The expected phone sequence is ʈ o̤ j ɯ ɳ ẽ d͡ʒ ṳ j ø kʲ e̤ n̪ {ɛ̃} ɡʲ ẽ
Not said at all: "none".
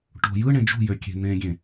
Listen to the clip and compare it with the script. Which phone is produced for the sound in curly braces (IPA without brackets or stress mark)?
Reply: ẽ